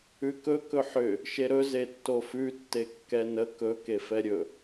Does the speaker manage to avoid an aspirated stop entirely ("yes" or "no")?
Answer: yes